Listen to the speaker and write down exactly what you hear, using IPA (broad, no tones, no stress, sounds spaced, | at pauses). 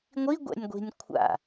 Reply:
ŋʷ i ɡʷ ɛ̰ nʲ ɡʷ i̤ nʲ kʷʰ a̰